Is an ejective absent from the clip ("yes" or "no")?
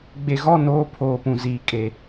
no